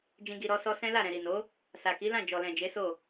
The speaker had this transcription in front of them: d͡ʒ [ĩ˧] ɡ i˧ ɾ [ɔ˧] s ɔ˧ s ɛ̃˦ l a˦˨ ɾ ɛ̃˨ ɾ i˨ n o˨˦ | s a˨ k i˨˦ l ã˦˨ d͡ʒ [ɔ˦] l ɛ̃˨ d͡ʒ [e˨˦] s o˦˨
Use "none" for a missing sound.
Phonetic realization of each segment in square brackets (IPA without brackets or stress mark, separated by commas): ĩ˧, ɔ˧, ɔ˨, e˨˦